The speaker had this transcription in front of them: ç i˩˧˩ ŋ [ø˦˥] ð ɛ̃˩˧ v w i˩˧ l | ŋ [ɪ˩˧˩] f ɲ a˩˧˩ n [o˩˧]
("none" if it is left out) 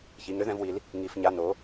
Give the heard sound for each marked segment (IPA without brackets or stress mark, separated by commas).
ø˦˥, i˩˧˩, o˩˧